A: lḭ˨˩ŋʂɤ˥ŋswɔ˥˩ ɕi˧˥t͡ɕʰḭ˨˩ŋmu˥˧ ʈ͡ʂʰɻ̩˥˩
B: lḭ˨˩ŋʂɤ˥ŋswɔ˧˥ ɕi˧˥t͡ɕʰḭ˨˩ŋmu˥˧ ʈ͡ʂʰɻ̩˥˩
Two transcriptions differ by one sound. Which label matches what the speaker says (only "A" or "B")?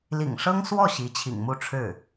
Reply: A